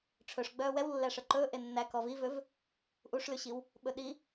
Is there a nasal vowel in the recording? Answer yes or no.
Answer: no